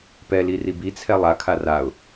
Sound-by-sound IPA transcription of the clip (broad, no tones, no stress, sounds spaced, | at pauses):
p ɛ l i r i b i t͡sʰ ɛ lˠ a kʰ a r a ʊ̯